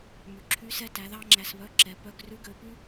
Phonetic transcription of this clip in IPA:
m y˩ ǁʰ y˧˥ s ɛ˧ t æ˩˧ ð ɑ˥ ŋ͡ǁ æ˧ s β œ˧˥ ǁ ɛ˩˧ p œ˧ ɡ r ʉ˧˥ ɡ ø˩˧ p y˥

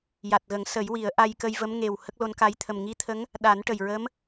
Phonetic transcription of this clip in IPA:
j a˨˩ t̚ ɣ ə˨˩˦ ŋ s ə˨˩˦ j w i˨˩˦ ə̯ ʔ a˧ j k ə˧ j v ə˧˥ m ŋ e˨˩ w h ə˦˥ k̚ l o˧˥ n k a˧˥ j t̪ʰ ə˨˩ m ŋ i˧˥ t̪ʰ ə˧˥ ŋ | ɗ a˨˩˦ n ʈ ə˨˩ j ɹ ə˧˥ m

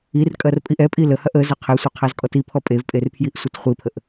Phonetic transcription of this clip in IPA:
i r kʼ ɐ r pʼ i ʔ ɛ pʼ i l ə h ɐ ʔ ə z ɐ qʰ ɛ sʷ a qʰ a z kʼ ɔ t i pʰ ɔ pʼ e v pʼ e r pʰ j i ʔ sʷ ɐ t χʷ i pʰ ə ʔ

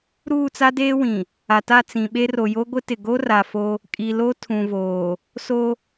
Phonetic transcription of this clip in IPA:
ɾ uː˦˨ t͡s a˦ d eː˦ w ĩ˨ | a˨ t a˦˨ t͡s ĩ˨ ɓ e˦ r o˨ j o˦ ɡʷ ɪ˦ t ɪ˨ ɡ o˦ r a˨ f o˦ | kʼ i˨ l o˦ tʰ ũ˨ v oː˨ | s o˦

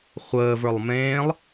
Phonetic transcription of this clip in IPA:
χʷ əː v ə˞ lˠ m ẽː lˠ

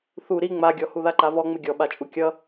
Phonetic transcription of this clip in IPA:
θ u ɾ i ŋ͡m a ɡʲ ɔ h u ð a ǃ a v ɔ ŋ͡m ɪ ɡʲ ɔ ɓ a t͡ʃʼ u kʲ ʌ

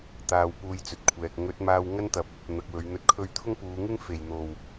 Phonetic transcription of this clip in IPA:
t̪ aː˧ w p uː˧ j t͡s ɵ˨ t̚ kʷʰ ɛː˨ k̚ ŋ ɵ˨˥ t̚ m aː˧ w ŋ ɐ˥ n t̪ ɐ˨ p̚ | n̪ ɐ˨ k̚ w ɵ˨˧ ɥ n̪ ɵ˧ t̚ kʰ ɵ˥ ɥ t̪ʰ ʊ˥ ŋ p uː˨˧ ŋ ɪ˥ ŋ f e˨˩ j n̪ o˨˩ w

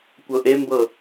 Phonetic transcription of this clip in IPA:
kʷ ɤ ʔ e m b ɤ

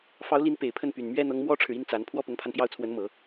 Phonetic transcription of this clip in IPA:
f ɑ˧˥ ʊ̯ l i˧˥ n p e˨˩ ɪ̯ pʰ ə˥˩ n p y˨˩ n m ɥ ɛ˥ n̪ ɤ˧˥ ŋ m w ɔ˥ ʈ͡ʂʰ ɻ̩˨ i˥ n t͡s a˧˥ n pʰ w ɔ˥ p ʊ˧˥ ŋ pʰ a˧ n p j ɑ˥˩ ʊ̯ t͡sʰ w ə˧˥ n m ɤ˨˩˦

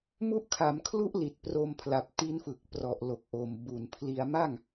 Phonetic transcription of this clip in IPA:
m u˦˥ ʔ kʰ a˩˦ m kʰ l u˦˥ ʔ l i˨˩ t̚ p r o˧ m pʰ l a˨˩ p̚ t i˦˥ n f ɯ˨˩ k̚ p r ɔ˨˩ ʔ l o˨˩ k̚ ʔ o˨˩ m b u˨˩ n pʰ l i˧ a̯ m a˥˩ ŋ

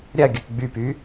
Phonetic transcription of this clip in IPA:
ɾʲ ɐ ɡʲ ə k ɡ͡b y p y

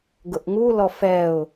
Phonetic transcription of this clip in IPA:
ɡ ʊ ʔ ŋ u l ɔ f ɛ ʊ̯

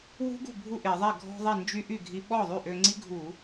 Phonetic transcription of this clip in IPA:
w ṳ˦˥ ɡ ṳ˥˩ bʱ u˥˩ ʔ e˧˩˧ ðˤ ɛ˥˩ ɡʱ ɔ̤˧ ðˤ i˥˩ n d͡ʒ y˦˥ ʔ y˥˩ ɡʱ i˧ ɓ ɔ˥˩ ðˤ y˥˩ ʔ ø˧ ŋ͡ǀ i˦˥ ɡʱ u˧˩˧

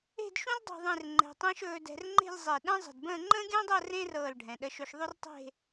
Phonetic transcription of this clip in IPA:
e̤˥˧ d ʃ ũ˥ l dˤ ṳ˥˧ ðˤ ẽ˥˧ r ŋ͡ǃ ɛ̤˧ tˤ ẽ˥ ʃ ɵː˧ d ɛ̤˧ r ŋ͡ǃ e̤˥˧ lʲ zˤ e˧˩ ɗ ɛ̃˥ zˤ ə̤˧˩ d b ə̃ː˥˧ ŋ͡ǃ ə̃ː˥ ɡʲ ə̃ː˥ dˤ ɤ˥˧ r ẽ˥ r ɤː˧˩ l ɖʱ ɛ̃˩˧ ɗ ə˧ ʃ ɵ˧ ʃ ðˤ ɵ˥ r tˤ e̤˥˧

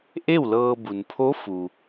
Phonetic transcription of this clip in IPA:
ʔ e˥˨ w l ɤː˧ b u˩ n pʰ o˧˥ f u˩

